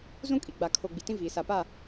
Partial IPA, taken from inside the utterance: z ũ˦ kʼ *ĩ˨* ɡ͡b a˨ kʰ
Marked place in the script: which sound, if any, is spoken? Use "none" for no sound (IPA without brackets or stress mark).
i˨